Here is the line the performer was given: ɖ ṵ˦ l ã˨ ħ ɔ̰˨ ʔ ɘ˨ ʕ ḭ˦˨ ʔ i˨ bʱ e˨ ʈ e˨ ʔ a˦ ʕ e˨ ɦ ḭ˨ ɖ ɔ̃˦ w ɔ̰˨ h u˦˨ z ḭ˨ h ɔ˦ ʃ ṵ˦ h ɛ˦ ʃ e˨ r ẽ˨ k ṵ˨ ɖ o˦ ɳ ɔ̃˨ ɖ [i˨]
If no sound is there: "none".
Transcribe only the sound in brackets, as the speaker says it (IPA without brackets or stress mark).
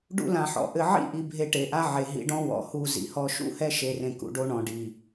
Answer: i˨